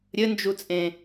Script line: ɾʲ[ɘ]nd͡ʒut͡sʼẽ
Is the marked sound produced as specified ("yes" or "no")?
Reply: yes